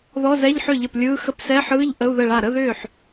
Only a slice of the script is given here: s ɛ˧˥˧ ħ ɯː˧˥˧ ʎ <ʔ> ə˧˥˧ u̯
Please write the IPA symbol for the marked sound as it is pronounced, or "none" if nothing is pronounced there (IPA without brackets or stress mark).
ʔ